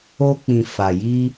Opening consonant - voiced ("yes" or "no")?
no